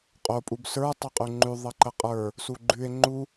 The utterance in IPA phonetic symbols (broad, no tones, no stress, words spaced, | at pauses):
qʼo pʼubsə˞ tˤoqʼʉŋ͡ǃʉ ðˤəǃəqʼə˞ | suɡ͡ǃʉe̯ ŋ͡ǃu